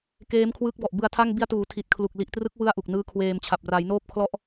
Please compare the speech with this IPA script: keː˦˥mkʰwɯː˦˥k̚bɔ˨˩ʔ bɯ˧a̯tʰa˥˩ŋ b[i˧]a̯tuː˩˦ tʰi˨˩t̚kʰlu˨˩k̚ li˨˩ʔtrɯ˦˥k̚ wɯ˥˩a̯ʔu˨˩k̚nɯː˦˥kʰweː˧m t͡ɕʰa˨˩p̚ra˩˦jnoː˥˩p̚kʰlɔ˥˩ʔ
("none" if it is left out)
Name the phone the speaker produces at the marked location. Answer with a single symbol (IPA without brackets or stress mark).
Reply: i˧